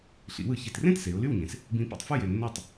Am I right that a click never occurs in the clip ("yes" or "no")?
yes